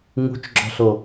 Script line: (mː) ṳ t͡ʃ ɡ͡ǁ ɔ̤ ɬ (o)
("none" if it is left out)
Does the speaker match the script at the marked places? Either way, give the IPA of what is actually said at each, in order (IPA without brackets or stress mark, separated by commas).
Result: ŋ, o